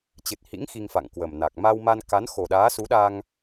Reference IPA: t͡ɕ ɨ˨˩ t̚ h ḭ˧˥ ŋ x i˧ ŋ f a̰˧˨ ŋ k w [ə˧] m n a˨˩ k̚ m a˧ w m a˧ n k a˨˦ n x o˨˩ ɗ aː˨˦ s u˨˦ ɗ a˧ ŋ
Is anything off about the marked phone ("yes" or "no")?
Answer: yes